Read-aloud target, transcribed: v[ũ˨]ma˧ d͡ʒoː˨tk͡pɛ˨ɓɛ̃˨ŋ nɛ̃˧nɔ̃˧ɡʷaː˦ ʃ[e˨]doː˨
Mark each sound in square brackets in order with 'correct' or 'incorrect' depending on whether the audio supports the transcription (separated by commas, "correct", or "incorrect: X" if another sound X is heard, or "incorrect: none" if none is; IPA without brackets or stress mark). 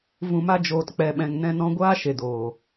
correct, correct